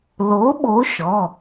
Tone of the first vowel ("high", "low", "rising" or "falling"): rising